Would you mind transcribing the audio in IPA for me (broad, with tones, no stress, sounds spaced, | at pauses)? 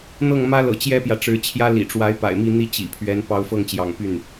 n̪ ɤ˥˩ ŋ m ä˥ l ɤ̰˨˩ t͡ɕ j ɛ˥ p j ä˨ ʈ͡ʂ ɻ̩˧˥ t͡ɕʰ j ä˥ l ḭ˨˩ ʈ͡ʂ w a˧˥ ɪ̯ p a̰˨˩ ɪ̯ m i˥˩ n̪ i˥ t͡ɕ ḭ˨˩ pʰ ɥ ɛ˧˥ n p ɑ˧˥ ʊ̯ f ɤ˥˩ ŋ t͡ɕ j ɑ̰˨˩ ŋ p y˥˩ n